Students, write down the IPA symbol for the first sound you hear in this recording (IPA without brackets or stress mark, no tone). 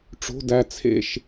ʈ͡ʂ